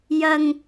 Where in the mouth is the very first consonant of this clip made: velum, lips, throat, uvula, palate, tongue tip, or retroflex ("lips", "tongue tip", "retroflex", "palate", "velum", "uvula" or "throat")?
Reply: palate